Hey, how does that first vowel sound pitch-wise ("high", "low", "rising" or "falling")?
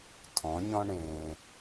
rising